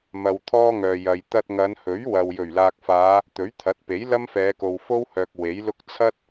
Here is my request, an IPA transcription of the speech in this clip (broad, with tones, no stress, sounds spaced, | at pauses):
m ɐ˨ w t̪ʰ ɔː˥ ŋ œː˨ j ɐ˨ j t̪ ɐ˧ t̚ ŋ ɐ˨˧ n h ɵ˨˥ ɥ w ɐ˨ w j ɵ˨˩ ɥ l aː˨ k̚ f aː˨˧ | t̪ ɵ˨˥ ɥ t̪ʰ ɐ˨˥ t̚ p e˨˥ j l ɐ˥ m f ɛː˨˧ k o˨ w f o˥ w h œː˨ k̚ w e˨˥ j l ʊ˥ k̚ t͡sʰ ɐ˥ t̚